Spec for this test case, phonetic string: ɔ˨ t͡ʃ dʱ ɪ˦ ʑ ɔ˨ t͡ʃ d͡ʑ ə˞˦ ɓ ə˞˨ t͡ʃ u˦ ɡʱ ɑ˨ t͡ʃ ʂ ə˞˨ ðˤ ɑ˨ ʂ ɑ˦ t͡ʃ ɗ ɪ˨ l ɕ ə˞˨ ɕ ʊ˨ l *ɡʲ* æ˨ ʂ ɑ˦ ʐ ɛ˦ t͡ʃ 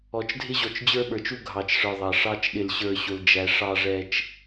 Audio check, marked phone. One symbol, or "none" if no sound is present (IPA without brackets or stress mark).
d͡ʒ